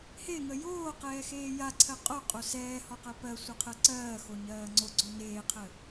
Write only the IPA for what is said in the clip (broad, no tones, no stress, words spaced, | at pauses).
heŋə joːqɛːxeː jaǀʰɜ qʼoqʼo sɛːhɔqɜ pɜsʷəqʰɜ ǀɜːxoɲɜː ŋ͡ǀoɡ͡ǀo neːqʰə